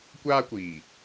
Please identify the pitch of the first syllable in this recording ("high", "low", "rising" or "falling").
high